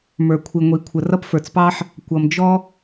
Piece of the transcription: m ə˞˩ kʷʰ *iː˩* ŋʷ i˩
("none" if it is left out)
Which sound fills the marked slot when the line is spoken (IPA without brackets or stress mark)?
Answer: i˩